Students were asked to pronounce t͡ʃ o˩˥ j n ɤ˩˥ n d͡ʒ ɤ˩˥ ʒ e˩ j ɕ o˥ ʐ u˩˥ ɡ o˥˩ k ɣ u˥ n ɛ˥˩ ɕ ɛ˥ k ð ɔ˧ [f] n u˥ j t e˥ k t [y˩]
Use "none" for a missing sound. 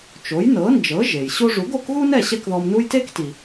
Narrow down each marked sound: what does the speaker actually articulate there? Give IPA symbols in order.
m, i˩

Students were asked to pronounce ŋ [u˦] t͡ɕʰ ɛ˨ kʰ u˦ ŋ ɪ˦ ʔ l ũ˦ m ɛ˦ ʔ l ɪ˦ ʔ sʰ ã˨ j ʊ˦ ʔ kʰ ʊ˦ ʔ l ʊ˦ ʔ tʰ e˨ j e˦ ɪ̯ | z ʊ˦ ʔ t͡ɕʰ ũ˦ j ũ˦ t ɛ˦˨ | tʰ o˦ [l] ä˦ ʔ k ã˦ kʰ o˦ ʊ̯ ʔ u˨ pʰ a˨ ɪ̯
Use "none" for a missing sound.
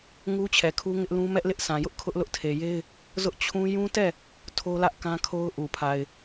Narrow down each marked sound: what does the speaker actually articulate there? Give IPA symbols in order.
u˦, l

